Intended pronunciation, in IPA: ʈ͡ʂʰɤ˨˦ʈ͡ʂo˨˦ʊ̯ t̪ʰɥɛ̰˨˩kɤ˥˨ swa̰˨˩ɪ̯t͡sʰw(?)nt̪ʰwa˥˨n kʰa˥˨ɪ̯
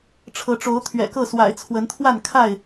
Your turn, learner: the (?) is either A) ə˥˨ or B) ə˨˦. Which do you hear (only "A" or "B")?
B